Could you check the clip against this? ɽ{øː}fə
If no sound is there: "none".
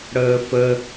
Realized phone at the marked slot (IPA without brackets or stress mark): əː